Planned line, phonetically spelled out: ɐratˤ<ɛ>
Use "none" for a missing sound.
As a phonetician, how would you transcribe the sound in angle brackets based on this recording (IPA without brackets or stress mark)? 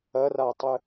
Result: ɘ